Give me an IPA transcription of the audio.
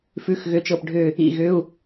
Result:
f ʉ˧˥˧ x ɣ ʏ˧˥˧ t͡ʃ ɤ˦˨ p ɖʱ ʏ˦˨ | ḭ˦˨ ɣ ʏ˧˥˧ u̯

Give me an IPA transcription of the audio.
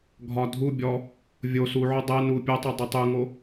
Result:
ɡʱ ɒ dʱ u bʲ ɔ | vʲ o s u ʕ o dˤ ɛ n u pʲ ɛ tˤ o dˤ ə tˤ u ŋ o

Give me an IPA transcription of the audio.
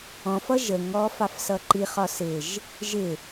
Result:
ɔ̃ f ʌ ʒ ə ŋ ɔ f ɑ f s ʌ ǃ i χ ɒ s ɪ ʒ | ʒ ɪ

